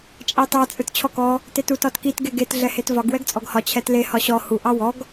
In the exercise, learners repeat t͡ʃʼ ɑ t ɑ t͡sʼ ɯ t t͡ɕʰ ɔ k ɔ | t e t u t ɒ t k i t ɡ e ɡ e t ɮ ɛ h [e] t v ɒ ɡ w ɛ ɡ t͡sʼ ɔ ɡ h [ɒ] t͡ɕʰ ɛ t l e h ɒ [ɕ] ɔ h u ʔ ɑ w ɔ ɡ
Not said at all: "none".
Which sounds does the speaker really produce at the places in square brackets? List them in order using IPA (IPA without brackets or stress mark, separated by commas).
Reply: e, ɒ, ɕ